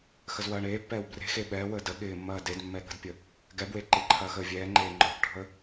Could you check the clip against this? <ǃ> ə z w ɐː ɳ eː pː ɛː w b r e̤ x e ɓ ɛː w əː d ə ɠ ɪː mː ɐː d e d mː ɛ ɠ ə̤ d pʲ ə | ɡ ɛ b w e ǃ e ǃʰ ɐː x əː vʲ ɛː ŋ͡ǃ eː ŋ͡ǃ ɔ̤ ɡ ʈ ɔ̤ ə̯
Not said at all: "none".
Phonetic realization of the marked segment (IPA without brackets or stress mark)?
x